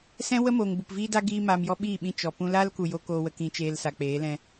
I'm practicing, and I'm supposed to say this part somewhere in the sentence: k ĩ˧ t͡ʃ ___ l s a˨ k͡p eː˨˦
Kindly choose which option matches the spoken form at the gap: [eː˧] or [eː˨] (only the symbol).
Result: eː˧